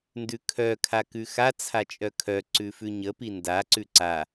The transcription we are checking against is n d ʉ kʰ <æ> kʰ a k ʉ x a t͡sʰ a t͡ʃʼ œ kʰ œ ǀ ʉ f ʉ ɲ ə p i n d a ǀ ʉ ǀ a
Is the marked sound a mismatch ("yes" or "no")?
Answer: yes